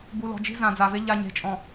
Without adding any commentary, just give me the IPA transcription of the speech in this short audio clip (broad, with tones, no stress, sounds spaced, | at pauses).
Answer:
b u˨ l ɔ̤˨ d͡ʒ i̤˦ z ã˨ d͡z a˨ v e˦ ʎ a˨ ɲ e̤˨ t͡ʃʼ ɔ̃˨